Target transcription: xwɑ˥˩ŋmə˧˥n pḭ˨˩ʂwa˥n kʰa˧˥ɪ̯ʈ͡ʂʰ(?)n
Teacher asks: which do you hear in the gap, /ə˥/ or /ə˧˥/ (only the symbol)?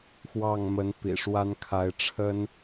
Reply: ə˥